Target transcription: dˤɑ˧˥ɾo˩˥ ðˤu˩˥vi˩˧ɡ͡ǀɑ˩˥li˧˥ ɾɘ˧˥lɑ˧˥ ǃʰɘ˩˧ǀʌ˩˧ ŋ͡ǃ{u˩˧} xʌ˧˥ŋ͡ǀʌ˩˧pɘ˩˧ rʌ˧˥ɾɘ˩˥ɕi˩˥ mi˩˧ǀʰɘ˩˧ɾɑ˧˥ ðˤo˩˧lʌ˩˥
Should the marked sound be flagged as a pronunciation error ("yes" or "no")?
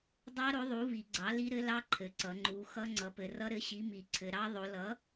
no